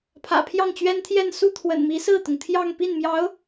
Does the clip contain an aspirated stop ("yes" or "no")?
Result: yes